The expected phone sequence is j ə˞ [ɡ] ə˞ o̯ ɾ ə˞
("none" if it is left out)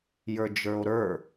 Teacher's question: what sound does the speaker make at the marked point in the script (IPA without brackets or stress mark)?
d͡ʒ